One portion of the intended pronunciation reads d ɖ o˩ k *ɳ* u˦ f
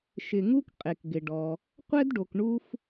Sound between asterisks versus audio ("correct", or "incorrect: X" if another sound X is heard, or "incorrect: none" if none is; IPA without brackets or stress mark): correct